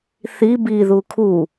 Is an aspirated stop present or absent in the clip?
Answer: present